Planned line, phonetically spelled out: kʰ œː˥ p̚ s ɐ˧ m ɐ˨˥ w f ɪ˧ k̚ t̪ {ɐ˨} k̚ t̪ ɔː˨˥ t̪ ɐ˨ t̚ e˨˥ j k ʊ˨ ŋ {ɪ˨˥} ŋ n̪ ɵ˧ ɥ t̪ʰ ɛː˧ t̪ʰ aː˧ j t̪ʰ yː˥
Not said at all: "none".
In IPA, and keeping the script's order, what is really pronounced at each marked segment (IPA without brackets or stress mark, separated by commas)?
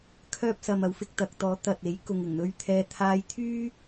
ɐ˨, ɪ˨˩